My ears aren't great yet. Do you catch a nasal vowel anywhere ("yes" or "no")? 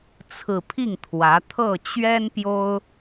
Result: no